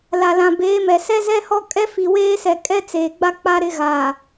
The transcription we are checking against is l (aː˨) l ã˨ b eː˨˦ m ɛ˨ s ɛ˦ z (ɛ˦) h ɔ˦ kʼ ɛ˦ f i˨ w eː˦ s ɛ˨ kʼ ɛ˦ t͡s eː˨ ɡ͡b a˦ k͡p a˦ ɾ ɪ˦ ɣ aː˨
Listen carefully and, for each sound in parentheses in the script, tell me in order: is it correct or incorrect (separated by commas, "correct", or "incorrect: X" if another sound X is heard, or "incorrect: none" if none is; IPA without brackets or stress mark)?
incorrect: a˨, correct